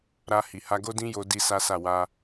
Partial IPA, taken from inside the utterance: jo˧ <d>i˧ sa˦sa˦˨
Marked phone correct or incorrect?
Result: correct